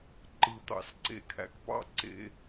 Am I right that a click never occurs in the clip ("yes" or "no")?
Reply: no